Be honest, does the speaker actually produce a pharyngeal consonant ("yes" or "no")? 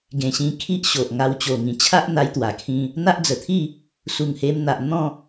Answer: no